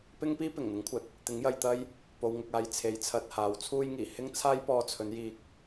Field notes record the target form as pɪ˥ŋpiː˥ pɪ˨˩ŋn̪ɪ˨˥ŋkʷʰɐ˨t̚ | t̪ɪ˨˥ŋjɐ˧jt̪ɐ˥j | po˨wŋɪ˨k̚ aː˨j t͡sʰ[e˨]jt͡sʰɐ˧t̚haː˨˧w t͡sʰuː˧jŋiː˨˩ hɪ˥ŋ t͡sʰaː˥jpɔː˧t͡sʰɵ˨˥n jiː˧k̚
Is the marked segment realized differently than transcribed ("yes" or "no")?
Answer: yes